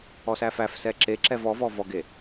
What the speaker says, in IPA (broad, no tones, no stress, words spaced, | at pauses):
ɔsæfæfsɛ ǁeǁɛv ɔvɔ vɔɡe